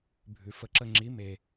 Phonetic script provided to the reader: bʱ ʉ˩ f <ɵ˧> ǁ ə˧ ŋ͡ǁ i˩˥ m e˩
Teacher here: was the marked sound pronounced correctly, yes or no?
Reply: no